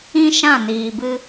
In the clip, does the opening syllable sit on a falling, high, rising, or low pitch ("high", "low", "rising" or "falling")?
high